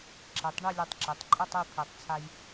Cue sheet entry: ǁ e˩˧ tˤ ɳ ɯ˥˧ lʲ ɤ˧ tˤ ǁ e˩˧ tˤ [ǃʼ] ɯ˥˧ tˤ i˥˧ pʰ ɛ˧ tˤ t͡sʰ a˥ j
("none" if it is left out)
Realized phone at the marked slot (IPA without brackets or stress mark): ǃʼ